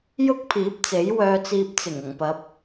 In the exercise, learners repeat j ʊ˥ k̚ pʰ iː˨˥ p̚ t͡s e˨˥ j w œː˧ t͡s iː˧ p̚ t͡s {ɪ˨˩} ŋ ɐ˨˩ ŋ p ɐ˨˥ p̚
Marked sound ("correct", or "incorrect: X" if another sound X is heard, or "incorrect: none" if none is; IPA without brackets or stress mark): correct